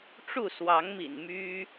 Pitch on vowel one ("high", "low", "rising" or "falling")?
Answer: falling